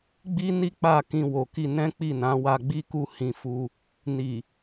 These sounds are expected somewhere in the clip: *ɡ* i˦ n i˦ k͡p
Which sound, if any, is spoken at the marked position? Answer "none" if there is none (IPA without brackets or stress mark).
ɡ͡b